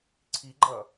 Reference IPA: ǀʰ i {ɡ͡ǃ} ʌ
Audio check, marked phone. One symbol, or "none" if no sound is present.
ɡ͡ǃ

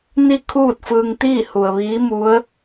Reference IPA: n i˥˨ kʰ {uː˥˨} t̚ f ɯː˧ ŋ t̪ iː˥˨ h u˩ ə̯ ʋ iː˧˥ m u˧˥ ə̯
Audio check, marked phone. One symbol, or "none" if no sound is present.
uː˥˨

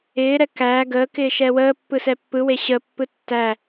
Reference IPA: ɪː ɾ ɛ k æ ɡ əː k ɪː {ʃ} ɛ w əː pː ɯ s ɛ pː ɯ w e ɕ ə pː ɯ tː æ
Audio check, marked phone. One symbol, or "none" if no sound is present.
ʃ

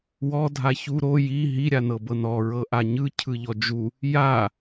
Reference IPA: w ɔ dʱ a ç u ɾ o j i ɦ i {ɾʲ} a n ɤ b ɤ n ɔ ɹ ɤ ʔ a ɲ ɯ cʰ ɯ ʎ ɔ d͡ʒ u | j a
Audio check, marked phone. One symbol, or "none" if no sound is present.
ɾʲ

